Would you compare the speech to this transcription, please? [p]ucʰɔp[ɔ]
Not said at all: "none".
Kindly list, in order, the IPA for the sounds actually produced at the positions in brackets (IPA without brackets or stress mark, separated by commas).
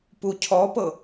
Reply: p, ɤ